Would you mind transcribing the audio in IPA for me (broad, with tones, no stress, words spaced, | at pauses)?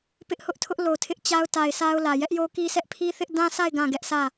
pɪ˦ʔhʊ˦ʔtʰʊ˦ʔ lo˨tʰɪ˦ʔt͡ɕa˦ʊ̯ ta˨ɪ̯ sa˦ʊ̯lä˨ jɛ˦ʔjo˦ki˦sʰɛ˦ʔ pʰi˦θɪ˦ʔ dã˦sa˦˨ɪ̯ ɡã˦˨ɡɛ˦ʔsʰä˦˨